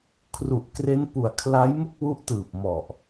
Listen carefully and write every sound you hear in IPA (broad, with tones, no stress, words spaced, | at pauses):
kʰru˨˩ʔkre˦˥npu˨˩a̯ kʰla˦˥jmu˥˩k̚wu˦˥ʔtɯː˨˩p̚ mɔ˨˩ʔ